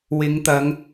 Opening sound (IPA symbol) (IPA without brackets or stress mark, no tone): w